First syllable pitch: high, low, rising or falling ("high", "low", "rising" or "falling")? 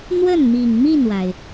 falling